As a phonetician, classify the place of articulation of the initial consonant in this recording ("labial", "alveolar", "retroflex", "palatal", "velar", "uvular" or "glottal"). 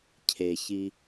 palatal